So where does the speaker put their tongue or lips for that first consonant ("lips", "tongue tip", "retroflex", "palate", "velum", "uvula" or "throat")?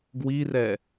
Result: velum